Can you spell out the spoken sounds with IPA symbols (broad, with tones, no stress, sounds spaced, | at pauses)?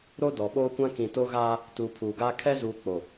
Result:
ɾ o˦ d ɔ˨ ɓ oː˦ kʷ ã˦ k ĩ˨ t o˦ ɣ aː˦ | t uː˨ pʰ uː˨ ɡ aː˦ kʰ ɛ˦ z uː˨ k͡p o˨